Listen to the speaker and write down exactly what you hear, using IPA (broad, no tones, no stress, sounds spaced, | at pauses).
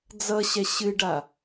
d͡z ʌ ɕ ɛ ɕ ɨ ɖ a